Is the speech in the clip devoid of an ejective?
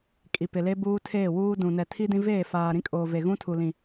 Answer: no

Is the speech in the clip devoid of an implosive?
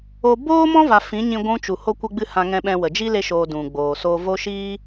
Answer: no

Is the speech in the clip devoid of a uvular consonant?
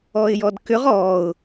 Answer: no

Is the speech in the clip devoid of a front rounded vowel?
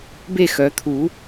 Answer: no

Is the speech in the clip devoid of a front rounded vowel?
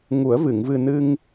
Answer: yes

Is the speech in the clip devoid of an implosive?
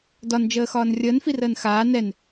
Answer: yes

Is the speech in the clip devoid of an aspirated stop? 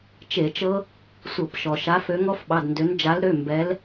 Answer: yes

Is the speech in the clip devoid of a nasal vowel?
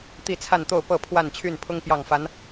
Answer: yes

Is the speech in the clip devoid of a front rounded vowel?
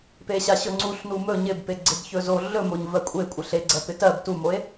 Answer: yes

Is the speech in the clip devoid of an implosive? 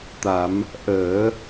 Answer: yes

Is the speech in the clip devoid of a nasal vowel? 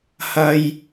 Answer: yes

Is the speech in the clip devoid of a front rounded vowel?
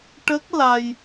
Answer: yes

